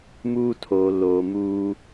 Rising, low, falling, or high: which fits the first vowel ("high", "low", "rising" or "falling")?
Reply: high